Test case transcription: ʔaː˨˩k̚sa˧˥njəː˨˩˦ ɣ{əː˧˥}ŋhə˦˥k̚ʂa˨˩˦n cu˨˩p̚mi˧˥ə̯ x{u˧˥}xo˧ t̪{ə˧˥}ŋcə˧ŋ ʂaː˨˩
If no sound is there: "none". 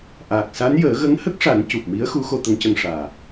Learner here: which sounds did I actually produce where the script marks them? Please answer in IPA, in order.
ə˧˥, u˧˥, ə˧˥

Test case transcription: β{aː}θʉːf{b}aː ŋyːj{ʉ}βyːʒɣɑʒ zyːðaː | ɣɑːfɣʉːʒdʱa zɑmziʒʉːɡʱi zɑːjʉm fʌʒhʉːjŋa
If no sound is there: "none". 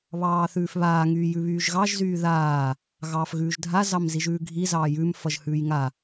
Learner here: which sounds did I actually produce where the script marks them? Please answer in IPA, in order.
ɑː, β, ʉ

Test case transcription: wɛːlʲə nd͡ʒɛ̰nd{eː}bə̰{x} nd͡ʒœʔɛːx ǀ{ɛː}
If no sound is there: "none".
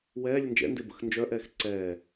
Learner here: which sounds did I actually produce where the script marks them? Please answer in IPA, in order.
e, x, ɛː

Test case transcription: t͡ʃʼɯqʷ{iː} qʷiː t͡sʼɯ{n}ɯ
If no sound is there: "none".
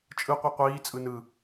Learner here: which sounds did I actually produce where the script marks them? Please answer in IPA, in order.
i, n

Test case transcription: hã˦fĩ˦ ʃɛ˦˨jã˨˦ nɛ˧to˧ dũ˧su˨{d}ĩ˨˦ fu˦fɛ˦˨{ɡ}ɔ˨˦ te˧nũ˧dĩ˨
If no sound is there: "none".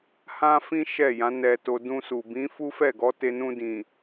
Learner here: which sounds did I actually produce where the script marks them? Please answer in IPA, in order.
b, ɡ

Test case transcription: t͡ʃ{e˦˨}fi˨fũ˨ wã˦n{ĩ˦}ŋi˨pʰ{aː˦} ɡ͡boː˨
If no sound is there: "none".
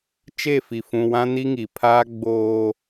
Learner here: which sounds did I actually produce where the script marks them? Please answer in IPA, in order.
e˦˨, i˦, aː˦

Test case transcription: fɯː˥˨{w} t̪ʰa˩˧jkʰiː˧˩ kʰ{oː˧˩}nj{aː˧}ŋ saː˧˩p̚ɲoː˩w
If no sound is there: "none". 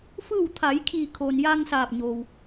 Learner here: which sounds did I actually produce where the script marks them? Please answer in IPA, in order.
w, oː˩, aː˧

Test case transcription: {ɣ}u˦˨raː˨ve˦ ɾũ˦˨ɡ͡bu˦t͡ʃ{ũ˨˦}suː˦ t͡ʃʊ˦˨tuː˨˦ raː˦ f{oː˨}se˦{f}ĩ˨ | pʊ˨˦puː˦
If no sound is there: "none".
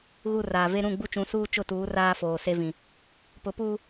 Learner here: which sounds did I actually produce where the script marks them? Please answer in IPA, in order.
ɣ, ũ˨˦, oː˨, v

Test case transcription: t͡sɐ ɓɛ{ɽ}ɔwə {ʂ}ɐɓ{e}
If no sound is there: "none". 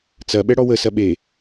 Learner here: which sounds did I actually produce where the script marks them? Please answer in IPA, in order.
ɽ, s, e

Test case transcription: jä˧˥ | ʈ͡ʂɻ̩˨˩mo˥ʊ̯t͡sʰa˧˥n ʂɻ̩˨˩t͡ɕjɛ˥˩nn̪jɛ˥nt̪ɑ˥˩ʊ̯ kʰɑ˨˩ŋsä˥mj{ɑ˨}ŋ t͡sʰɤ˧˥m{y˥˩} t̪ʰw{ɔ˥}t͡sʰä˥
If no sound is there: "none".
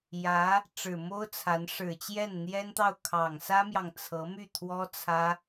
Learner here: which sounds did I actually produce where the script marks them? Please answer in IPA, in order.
ɑ˨, y˥˩, ɔ˥

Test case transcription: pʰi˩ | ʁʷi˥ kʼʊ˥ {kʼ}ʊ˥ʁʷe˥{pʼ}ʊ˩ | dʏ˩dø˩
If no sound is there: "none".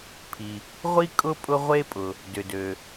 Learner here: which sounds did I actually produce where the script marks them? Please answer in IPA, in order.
pʼ, pʼ

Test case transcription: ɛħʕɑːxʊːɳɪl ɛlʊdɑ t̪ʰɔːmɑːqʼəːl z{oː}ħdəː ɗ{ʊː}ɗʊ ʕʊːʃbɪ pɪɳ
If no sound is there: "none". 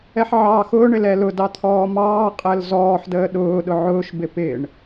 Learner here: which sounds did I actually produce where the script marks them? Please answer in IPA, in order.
ɔː, ʊː

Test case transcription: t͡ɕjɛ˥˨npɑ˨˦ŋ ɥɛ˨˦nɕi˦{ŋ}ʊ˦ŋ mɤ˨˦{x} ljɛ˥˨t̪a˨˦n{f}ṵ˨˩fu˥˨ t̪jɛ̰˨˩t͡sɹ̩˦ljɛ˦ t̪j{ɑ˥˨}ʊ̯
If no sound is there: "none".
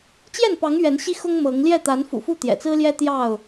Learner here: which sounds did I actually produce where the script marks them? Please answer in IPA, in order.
x, ŋ, f, ɑ˥˨

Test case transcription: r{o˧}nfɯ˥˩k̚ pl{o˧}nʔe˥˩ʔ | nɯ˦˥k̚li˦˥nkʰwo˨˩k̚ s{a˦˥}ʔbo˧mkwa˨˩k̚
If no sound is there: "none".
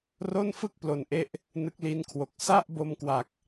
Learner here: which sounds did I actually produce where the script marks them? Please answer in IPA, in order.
o˥˩, o˧, a˥˩

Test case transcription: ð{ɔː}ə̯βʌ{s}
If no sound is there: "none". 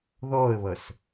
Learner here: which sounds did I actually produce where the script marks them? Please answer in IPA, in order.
ɔː, s

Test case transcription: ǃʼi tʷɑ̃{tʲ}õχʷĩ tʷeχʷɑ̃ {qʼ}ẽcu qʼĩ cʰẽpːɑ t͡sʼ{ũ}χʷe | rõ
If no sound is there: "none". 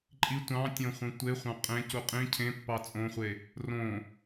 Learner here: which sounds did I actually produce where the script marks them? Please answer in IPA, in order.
tʲ, qʼ, õ

